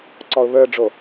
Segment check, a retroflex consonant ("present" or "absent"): present